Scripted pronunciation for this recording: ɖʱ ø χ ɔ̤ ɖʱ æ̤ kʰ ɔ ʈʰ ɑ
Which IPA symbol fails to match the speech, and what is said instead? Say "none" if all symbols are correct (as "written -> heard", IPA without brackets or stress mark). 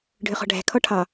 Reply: none